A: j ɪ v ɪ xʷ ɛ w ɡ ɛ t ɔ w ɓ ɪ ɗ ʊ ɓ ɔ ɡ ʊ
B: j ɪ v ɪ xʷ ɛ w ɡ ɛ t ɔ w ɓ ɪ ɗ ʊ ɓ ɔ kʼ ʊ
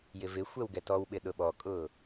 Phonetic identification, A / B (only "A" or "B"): B